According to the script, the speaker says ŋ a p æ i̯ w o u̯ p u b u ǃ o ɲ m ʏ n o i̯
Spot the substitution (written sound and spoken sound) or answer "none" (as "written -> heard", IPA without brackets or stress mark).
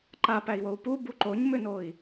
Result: ŋ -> ǃ